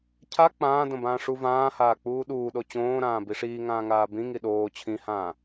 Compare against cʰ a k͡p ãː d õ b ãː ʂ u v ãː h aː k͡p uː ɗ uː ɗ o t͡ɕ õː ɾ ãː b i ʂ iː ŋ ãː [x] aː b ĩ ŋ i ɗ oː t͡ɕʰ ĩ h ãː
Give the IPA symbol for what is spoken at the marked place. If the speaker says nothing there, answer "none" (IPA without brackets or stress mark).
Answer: ŋ